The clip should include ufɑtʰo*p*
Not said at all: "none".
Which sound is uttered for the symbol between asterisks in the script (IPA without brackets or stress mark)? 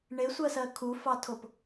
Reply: p